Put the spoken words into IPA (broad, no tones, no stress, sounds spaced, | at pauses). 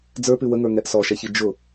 d͡z ə˞ p ʉ w ə ŋ ə˞ ŋ ɛ ʔ s ɔ ʃ ɛ ç i d͡ʒ ʊ